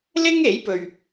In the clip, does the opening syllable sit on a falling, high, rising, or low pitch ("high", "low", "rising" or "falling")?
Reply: high